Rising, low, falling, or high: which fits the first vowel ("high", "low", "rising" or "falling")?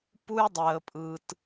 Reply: high